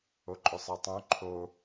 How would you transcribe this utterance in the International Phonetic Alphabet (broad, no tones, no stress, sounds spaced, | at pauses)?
o ǃʼ ʏ sˤ ɤ tˤ õ ǃʰ o